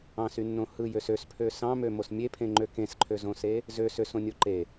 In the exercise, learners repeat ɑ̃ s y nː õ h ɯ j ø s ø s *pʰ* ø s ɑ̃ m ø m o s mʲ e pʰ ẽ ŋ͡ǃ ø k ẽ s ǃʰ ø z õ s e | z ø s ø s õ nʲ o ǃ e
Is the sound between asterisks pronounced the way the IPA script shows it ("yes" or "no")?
yes